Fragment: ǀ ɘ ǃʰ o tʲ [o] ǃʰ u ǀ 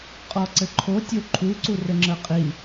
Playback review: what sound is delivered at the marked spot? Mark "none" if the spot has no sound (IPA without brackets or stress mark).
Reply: o